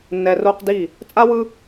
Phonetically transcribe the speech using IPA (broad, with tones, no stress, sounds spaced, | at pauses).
nː ɛ˨ r o˧ q d i˦˨ | t͡sʼ a˦ w ɯ˦